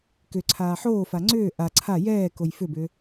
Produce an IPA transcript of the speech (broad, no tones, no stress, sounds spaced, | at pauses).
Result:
k ʏ ǀʰ aː ħ oː f a ŋ͡ǀ ʏː ʔ a ǀʰ a j ɛː k o j f ʏ b ʏː